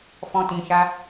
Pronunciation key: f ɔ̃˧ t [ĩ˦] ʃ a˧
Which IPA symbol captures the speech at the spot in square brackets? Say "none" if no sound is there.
ĩ˨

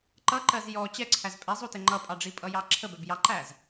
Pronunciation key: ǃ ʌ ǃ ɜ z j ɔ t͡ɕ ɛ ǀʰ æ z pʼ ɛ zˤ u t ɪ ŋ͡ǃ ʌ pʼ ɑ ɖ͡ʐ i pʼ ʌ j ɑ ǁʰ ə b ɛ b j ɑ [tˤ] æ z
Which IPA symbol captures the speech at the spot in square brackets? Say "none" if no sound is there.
ǃ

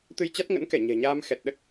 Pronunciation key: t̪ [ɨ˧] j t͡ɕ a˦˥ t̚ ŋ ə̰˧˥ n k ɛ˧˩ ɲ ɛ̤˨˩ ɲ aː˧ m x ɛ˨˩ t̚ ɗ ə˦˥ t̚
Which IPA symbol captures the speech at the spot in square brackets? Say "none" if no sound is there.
ɨ˧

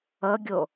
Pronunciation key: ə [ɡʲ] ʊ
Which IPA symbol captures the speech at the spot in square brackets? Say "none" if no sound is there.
ɡʲ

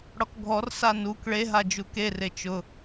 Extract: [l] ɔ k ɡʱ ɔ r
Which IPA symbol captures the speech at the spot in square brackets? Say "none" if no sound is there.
ɽ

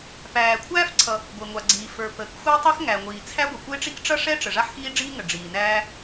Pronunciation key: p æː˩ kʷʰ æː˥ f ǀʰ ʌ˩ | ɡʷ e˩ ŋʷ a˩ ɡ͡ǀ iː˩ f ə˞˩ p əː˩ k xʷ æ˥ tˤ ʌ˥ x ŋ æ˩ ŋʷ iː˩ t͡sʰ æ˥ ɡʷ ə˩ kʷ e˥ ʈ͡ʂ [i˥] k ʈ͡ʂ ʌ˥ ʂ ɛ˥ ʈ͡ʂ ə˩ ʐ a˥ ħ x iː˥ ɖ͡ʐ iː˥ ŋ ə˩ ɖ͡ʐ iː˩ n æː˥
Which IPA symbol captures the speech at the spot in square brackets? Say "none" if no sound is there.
i˥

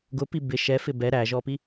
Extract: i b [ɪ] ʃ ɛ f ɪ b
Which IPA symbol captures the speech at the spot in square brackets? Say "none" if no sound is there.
ɪ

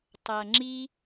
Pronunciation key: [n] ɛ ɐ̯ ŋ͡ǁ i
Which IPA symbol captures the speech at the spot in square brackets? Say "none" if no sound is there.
tˤ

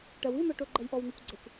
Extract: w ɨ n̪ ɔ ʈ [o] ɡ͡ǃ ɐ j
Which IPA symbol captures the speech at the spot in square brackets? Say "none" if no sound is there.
o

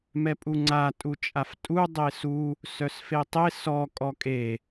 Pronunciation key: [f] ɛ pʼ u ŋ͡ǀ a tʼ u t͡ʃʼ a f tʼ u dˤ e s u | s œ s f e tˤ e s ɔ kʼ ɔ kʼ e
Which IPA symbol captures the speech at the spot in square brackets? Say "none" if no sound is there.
m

